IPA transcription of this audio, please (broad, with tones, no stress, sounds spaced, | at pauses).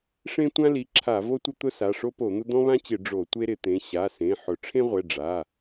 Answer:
ʂ ẽ˦ tʷ ã˦ l i˩˧˩ ǁʰ a˧˩˧ v o˦ tʷ ɪ˦ t̪ ʊ˦ s a˩˧˩ ʂ o˦ p o˧˩˧ n̪ ʊ˦ d̪ ɔ̃˦ β ã˦ t͡ɕ ɪ˧˩˧ ɖ͡ʐ o˧˩˧ tʷ e˦ ɾ ɪ˧˩˧ t̪ ẽ˩˧˩ ɕ a˩˧˩ s ẽ˩˧˩ ħ ʊ˧˩˧ ʈ͡ʂʰ ẽ˦ ʁʷ ɛ˩˧˩ ɖ͡ʐ a˩˧˩